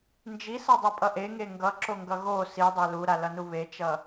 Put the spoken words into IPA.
nd͡ʒisʌdˤipʼʌ ʔeŋe ŋɡʌǁoŋɡʌ ɣo sidˤɛ luɾalʌnu βet͡ʃʌ

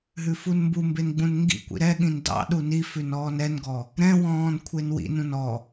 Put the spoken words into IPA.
ɦʉfunmbumben ɡ͡bũnŋɡḭkʷḭ ɾɛɠĩn dɑ̰ɗu nifʉn ɔːnɛnɡɔ | ɾɛ̃wɔ̃ːn kʷʰenwḭnũn ɔ

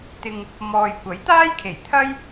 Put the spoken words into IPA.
t̪ɪ˧ŋ | mɔː˨jkʷɐ˨˥j t̪aː˥jkʰe˨˩j t̪ʰɐ˥j

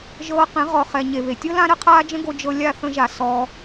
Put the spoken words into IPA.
ʒɤː˧qẽ˨˦ ʁɔ˨χɛ˨ ɲe˨βe˨tʲɤ˦ lã˦ɾə˦qʰaː˦ d͡ʒə̃˦ɡo˧ d͡ʒɤ˧ lʲa˦˨θə̃˧ʒa˨ sɔ˧

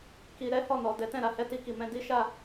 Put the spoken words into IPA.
ki˧ ɾɛ˦hɔ˦˨nɔ˨ dɛ˨˦tɛ̃˦˨ɾa˧hɛ˧ ti˧ki˨mɛ̃˧ di˦ʃa˦˨

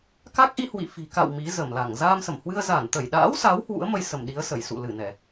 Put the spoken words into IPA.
ka˦˥k̚ʔi˧ hwḭ˧˨fi̤˨˩ka̰˧˨w mi˨˦zə˧˩mla˧˩ŋ zaː˧msə˧˩mhwɨ˧ə̯ za˧˩nt̪ə˧˩jɗa̰ː˧˥wsa˨˦w hwṵ˧˥ə̯mə˧j sə˧˩mɗi˨˦ə̯ sə˧˩j sṵ˧˨lɨ˧˩nɛ˧˩˨

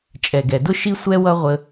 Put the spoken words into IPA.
t͡ʃʼɛ˨ɡɛ˨dʊ˦ ʃi˦sʷɛ˦wʌ˦ ʁʷə˦

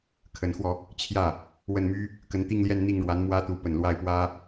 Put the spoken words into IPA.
kʰə˧˥nxwɔ˧ | t͡ɕʰjä˥˩ | wə˥˩nmy˥ | kə˧˥nt̪i˥˧ŋljɛ˥˧n n̪i˥˩ŋɻwa˧˥n mwä˥t̪u˧˥pə˨˩n lwa˥˩ɪ̯pwä˥

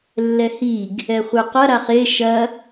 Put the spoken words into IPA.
lːɛhiɡ | ɛχʷɘqɐ ɾaχe ʃɐ

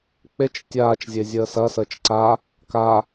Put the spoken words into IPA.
k͡pet͡ʃ tʲaːt͡ʃzʲezʲəː sɐsəːt͡ʃ ǀa | ka

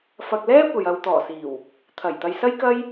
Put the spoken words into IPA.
fɐ˧k̚ lɛː˥ kʷɐ˨j ɐ˨wt̪ɔː˨˩siː˨˩w | t̪ʰɐ˨˩jt̪ɐ˧jsɐ˥jkɐ˥j

